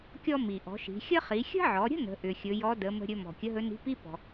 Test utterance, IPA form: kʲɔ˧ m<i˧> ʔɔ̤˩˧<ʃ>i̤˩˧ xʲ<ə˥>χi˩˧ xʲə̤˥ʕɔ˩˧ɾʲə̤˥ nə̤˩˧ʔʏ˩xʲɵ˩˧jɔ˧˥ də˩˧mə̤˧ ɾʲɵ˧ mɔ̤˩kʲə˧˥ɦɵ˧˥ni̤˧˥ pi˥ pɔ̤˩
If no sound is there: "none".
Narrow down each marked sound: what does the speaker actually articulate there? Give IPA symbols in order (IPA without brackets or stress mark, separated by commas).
i˩, ʃ, ə˥